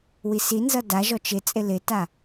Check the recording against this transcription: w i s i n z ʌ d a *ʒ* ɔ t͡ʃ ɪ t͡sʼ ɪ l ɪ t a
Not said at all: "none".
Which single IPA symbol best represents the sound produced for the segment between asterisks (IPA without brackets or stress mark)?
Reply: ʒ